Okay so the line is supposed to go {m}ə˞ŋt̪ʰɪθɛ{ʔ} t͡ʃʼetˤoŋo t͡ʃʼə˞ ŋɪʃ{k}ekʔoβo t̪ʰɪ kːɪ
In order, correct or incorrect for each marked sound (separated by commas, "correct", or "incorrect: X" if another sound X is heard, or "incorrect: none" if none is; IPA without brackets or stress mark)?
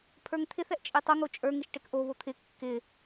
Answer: incorrect: pʰ, correct, incorrect: ʈ